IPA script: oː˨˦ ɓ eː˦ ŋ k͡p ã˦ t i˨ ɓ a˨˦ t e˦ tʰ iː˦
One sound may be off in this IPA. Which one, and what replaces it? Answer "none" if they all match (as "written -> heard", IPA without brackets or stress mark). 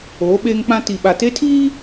a˨˦ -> a˨